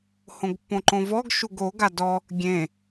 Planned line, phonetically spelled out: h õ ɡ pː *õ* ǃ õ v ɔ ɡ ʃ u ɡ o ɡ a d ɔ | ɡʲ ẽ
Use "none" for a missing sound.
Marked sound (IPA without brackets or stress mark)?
õ